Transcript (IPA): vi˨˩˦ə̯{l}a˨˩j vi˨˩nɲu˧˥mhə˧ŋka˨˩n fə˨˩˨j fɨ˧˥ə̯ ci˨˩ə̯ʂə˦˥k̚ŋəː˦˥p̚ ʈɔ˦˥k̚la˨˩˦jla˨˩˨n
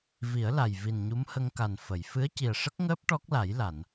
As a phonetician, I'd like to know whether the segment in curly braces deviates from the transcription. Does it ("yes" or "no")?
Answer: no